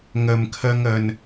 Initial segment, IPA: ŋ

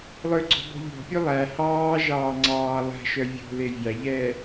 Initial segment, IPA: lˠ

